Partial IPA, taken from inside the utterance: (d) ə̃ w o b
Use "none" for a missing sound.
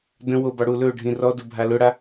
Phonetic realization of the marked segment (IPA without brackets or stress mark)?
d